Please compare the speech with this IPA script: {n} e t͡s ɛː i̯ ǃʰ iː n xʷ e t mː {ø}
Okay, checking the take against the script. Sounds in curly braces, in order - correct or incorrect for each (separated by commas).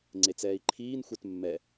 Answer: incorrect, incorrect